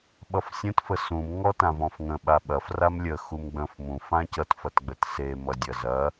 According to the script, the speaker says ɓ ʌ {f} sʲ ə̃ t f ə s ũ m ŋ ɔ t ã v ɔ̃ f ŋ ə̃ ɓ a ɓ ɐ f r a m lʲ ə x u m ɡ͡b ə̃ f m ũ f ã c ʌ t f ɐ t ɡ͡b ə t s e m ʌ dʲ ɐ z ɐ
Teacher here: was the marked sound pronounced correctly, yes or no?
yes